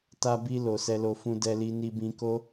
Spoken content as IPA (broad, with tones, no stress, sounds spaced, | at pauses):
t a˧ b i˧ l o˨ s ɛ˧ l o˧ f ũ˧ d ɛ˧ l i˧ n i˧ b ĩ˧ k o˦